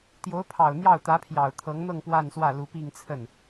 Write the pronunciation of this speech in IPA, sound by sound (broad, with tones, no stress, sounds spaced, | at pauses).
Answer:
t̪ j o˧˥ ʊ̯ pʰ ɑ˨˩ ʊ̯ n̪ j ɑ˥˩ ʊ̯ t̪ ä˧˥ pʰ j ɑ˨˩ ʊ̯ t̪ʰ ɤ˧˥ ŋ n̪ ɤ˥˧ ŋ p w a˥˧ n s w ä˥˩ l u˧˥ p i˥˧ ŋ t͡sʰ ə˥˩ n